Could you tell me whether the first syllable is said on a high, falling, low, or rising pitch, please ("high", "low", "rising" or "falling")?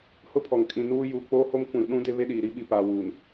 high